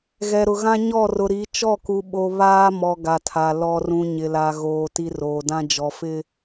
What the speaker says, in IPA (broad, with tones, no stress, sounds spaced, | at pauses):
ɣ ɛ˨ ɾ ʊ˨ ɣ ã˦ ɲ ɔ˦˨ r ʊ˨ ɾ i˨˦ t͡ʃ ɔ˦˨ k u˨ ɓ o˨ β aː˦ m ɔ˨ ɡ a˨ tʰ a˨ l ɔ˨ r ũ˨ ɲ ɪ˨ l a˨ ɣ oː˨ t i˨ r oː˨ d ã˦ d͡ʒ ɔ˨ f ɪ˦